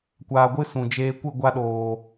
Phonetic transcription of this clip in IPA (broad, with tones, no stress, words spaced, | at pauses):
kʷaː˧ɡʷɨ˦sũ˨ d͡ʒeː˧kʷɨ˦˨ ɡʷa˧ɗoː˨